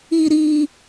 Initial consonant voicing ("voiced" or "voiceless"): voiced